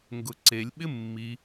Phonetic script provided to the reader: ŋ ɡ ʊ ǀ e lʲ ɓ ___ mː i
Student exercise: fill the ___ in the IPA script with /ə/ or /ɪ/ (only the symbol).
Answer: ɪ